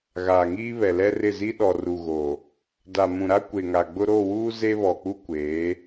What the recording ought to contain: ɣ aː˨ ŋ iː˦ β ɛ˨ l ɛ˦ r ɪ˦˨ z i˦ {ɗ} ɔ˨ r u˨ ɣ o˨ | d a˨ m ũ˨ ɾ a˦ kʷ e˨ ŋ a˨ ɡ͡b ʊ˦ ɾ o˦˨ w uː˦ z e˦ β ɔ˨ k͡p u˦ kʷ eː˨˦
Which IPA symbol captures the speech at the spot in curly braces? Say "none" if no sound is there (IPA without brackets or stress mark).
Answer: ɗ